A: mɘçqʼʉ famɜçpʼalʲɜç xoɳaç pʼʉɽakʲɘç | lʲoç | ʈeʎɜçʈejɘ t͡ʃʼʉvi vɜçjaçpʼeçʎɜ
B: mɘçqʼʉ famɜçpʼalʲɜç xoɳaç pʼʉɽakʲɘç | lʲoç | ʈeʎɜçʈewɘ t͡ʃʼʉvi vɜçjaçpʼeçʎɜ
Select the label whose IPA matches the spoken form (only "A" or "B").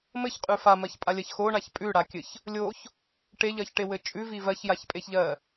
B